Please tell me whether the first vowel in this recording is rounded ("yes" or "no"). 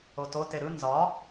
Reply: yes